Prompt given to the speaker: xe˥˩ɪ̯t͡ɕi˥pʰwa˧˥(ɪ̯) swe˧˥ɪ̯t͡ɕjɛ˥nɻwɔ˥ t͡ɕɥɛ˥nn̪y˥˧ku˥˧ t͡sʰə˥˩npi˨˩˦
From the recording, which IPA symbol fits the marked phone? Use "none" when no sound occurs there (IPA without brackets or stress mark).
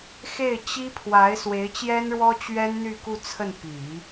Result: ɪ̯